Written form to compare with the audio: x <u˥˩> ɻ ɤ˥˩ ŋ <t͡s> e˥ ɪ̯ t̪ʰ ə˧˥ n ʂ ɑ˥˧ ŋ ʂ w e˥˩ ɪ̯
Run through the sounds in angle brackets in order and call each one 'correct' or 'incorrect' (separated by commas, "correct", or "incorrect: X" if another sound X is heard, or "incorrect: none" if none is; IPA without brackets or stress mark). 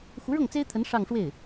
incorrect: u˧˥, correct